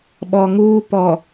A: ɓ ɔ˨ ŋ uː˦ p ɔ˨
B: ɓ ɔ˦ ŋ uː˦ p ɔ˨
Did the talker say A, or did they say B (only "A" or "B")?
A